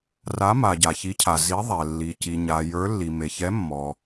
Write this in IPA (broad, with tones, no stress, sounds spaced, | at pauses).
r a˨˦ m a˩ ɟ a˩ ç i˨˦ cʰ a˩ z i˨˦ ðˤ ɛ˩ lː i˩ c i˩ ɲ a˩ j ə˞˨˦ lː i˩ m e˩ ç ɛ˨˦ mː ɔ˩